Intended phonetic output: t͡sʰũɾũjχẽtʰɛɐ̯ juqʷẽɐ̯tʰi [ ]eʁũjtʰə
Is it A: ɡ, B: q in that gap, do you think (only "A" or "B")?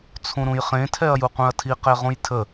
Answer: B